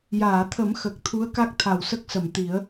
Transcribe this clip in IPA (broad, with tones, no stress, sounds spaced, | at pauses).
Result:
j aː˨˩˨ t̪ʰ ə˨˩˦ m x ə˨˩ k̚ t̪ʰ u˧˥ ə̯ k a˦˥ k̚ t̪ʰ a˨˩ w s ə˦˥ k̚ s ə˨˩˨ m t̪ i˨˩˦ ə̯